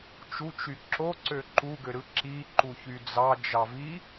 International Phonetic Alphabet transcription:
t͡ʃ u t͡ʃ y ǁ o ǀ ø ǃ u ɡ ø ɾ ɯ ǁ i ǃ u ç y d͡z ɑ d͡ʒ ɑ v i

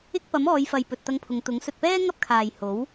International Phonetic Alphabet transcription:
ɪ˥ k̚ p ɐ˨˥ m ɔː˨˧ j f ɐ˨ j p ɵ˨ t̚ t̪ ɐ˧ ŋ pʰ ʊ˨˧ ŋ t̪ ʊ˨˥ ŋ s ɵ˨ t̚ p ɛː˥ ŋ ɐ˥ p̚ kʰ aː˨ j h o˨˥ w

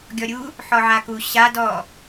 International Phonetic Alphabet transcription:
ɡʲ ɔ ɾʲ u | ħ ɔ ʕ a k u ɕ a d ɔ

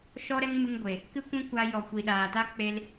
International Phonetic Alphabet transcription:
ʃ ɔ˦ ɾ ɛ˦ ŋ m ɨ˧ ŋ ɡʷ e˨ | k ɨ˦ kʷ ĩ˦ kʷ a˧ j ɔ˨ kʷ i˨ ɗ aː˨ t a˦ k͡p e˧ l

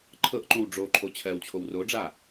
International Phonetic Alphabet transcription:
ǃʰ ɤ ʔ ǃ õ w ɖ͡ʐ o ǃʰ o t͡ɕʰ ɜ w t͡ɕʰ o w r o ɖ͡ʐ a

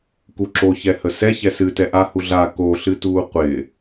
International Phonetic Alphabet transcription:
k u ǁ o ç ɛ h ə s ɛ ç ɛ s ɨ t ɛ ʔ a h u ɮ a k o ɬ ɨ t uː qʷ ɪ

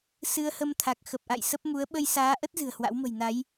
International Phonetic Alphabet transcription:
s ɨ˧ ə̯ h ə˧ m t̪ʰ a˨˩ k̚ x ə˨˩ p̚ ʔ a̰˧˨ j s ə˦˥ p̚ m u˨˦ ə̯ ɓ ə˧ j s aː˨˦ ʔ ə˦˥ t̚ z ɨ̤˨˩ ə̯ h w a̰˧˥ w m ə̤˨˩ j n a˨˦ j

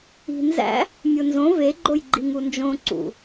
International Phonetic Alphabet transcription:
i̤ n z æ̰ | mʲ o n z õ v e ɡ͡ǃ o j ɡ͡ǃ i ŋ u n d͡ʒ õ ǀ ṵ

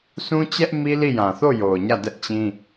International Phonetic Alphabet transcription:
s ũ˦ t͡ɕ ɛ˦ ʔ m i˦ l i˦˨ j ã˨ θ o˦˨ j o˨ ʊ̯ ɲ ä˦˨ d ɛ˦ ʔ t͡ɕ ĩ˦

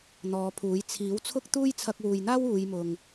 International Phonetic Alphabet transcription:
n̪ ɔː˨˧ pʰ uː˨˥ j t͡sʰ iː˨˥ w t͡sʰ ʊ˥ k̚ t̪ uː˥ j t͡sʰ ɐ˧ k̚ w uː˨ j n̪ aː˥ w uː˨˧ j m ʊ˨ ŋ

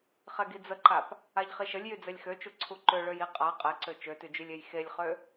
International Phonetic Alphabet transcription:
χ ɛ ɡ i d͡z ə ǃ a p | a ʎ χ i ʃ ə lʲ j y d͡z ɛ lʲ x ø t͡ʃ u ǀʰ u ǃ ø ɭ ø j i qʼ a qʼ ɛ ǀ ø t͡ʃ ø t y d͡ʒ y lʲ e j x e lʲ χ ø

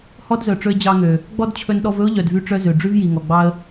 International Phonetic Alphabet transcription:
h ɔ˥ d z œ˩ ʈ͡ʂ ɵ˧ ɪ̯ d͡ʑ ɑ˧ ŋ ø˩ | ɡ͡b ɔ˥ d t͡ɕʰ ɵ˧ n ɗ ɔ˧ v ɵ˥ ʊ̯ ʎ œ˩ d v y˧ ʈ͡ʂ œ˧ z ø˩ ɖ͡ʐ ʉ˥ v j i˩ ŋ ɔ˩ ɡ͡b ɑ˧ ə̯

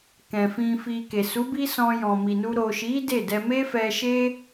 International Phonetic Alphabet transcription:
k ɛ̃˨ f ĩ˧ f i˧ k e˨ s u˨˦ b i˦ s ɔ̃˧ j ɔ̃˨ m i˨ n u˧ ɾ o˨ ʃ i˨˦ d e˦˨ d ɛ˧ m e˦ f ɛ˧ ʃ e˦

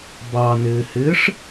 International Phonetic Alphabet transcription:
b ɑ n ɪː h ɪː ʂ

